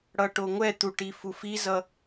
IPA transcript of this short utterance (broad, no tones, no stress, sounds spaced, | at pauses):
ɽ ʌ ʈ o ŋʷ ɛ t̪ u ʈ i f u f i z ʌ